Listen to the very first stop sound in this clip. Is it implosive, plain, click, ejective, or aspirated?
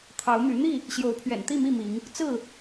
aspirated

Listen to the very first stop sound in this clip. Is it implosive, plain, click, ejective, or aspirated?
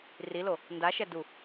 plain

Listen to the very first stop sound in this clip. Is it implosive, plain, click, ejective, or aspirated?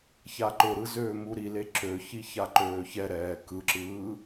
click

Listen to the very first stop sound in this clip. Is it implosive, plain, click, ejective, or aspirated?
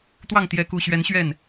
plain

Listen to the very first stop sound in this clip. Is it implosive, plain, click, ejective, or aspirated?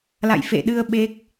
implosive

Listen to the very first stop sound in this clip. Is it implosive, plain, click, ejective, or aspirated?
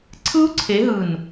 click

